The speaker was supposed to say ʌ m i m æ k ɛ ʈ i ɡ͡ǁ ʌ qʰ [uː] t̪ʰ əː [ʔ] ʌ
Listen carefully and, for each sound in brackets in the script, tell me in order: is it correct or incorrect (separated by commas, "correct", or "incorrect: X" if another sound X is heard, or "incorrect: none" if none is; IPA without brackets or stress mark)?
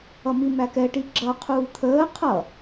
correct, incorrect: qʰ